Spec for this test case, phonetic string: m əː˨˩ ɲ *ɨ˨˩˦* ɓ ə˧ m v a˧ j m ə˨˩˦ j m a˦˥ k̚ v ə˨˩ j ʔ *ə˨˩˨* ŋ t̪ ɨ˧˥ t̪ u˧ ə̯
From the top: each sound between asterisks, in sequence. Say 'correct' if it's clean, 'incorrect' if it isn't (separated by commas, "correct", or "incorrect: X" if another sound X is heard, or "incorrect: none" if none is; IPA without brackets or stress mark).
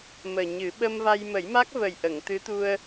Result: correct, correct